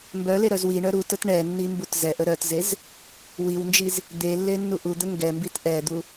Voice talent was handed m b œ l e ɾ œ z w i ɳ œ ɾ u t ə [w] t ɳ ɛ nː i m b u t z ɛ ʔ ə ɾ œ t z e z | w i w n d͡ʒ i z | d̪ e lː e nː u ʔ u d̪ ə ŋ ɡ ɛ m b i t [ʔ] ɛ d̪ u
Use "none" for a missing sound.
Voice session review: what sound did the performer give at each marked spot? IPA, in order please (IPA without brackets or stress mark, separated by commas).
none, ʔ